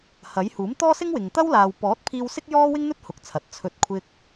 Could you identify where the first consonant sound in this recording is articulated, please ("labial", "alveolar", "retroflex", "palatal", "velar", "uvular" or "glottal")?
glottal